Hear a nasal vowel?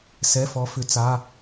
no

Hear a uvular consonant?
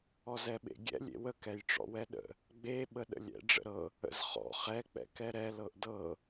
yes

